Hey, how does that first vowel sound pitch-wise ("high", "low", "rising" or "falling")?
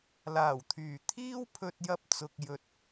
low